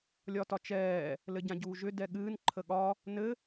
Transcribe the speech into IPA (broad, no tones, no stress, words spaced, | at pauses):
lʲɒtɒt͡ʃɛː | lɘɟãɟuːʒʏ dɛɠɨːn ǃʰəɠɒ | nɘ